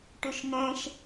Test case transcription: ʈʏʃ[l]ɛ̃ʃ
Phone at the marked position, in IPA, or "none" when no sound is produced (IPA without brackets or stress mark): n